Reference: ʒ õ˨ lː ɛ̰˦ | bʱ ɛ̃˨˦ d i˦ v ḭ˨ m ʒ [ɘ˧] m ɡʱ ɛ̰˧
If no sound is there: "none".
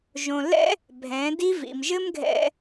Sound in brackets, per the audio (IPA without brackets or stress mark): ɘ˦